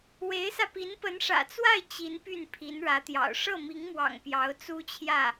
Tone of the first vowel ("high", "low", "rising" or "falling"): rising